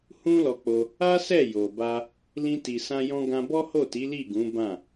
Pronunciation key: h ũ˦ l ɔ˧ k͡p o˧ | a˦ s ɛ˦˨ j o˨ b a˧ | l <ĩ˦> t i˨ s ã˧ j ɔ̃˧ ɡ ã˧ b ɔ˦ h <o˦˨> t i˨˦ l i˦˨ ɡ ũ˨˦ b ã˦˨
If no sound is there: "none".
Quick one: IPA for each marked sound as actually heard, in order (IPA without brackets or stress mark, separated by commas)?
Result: ĩ˧, o˦˨